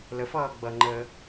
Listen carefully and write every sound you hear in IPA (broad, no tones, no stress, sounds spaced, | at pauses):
l ə f ʌː ɡ͡b ʌ ŋ͡ǃ əː